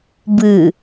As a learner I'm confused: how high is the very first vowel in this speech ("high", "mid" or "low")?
high